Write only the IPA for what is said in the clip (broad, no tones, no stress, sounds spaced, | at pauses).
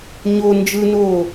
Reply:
ɲ o n d͡ʒ ɯ n oː